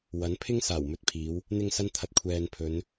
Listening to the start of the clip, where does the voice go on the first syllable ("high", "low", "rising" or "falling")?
rising